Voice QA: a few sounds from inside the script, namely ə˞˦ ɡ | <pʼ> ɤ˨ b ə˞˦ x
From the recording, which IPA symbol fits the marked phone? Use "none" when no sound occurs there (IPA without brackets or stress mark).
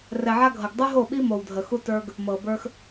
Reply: m